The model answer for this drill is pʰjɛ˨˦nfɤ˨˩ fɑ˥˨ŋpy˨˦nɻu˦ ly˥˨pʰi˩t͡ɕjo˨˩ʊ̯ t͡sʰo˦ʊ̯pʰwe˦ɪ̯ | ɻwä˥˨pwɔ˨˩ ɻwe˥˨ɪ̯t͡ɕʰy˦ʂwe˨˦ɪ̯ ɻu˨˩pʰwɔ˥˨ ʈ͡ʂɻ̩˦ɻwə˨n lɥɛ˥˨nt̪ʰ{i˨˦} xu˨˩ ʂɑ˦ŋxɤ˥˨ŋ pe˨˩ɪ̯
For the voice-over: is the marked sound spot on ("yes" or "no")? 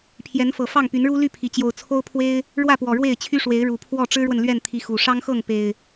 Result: yes